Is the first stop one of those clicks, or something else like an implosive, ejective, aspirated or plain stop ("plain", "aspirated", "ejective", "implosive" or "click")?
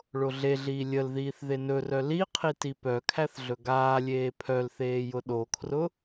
aspirated